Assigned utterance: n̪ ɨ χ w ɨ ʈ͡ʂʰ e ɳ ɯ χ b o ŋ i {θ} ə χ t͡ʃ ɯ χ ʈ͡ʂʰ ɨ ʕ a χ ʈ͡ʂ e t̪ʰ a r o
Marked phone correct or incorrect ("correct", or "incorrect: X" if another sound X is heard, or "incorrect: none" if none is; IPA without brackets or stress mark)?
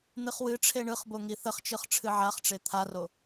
correct